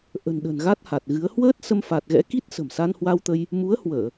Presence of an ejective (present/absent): absent